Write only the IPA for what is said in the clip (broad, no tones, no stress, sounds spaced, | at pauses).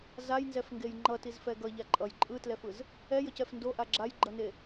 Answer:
z a j n z ɛ f ŋ ɡ e j ŋ͡ǃ ʌ t i z f ɛ ɡ ʌ ʎ a ǃʼ ʌ j ǃʼ ɯ t l ɛ f ɯ z | ɛ j ʌ c ɛ f n d o ʔ a ɡ͡ǁ a j ɡ͡ǃ ʌ n e